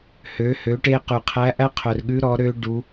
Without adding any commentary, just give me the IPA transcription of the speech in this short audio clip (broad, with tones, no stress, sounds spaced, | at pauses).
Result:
h ø˩˧ h ø˩˧ ʈ e˧ q ʉ˩ qʰ æ˧˥ ʔ æ˥ qʰ œ˩ r ɠ ʉ˧˥ ɾ ɔ˩˧ ɾ ø˥ ɖ u˩˧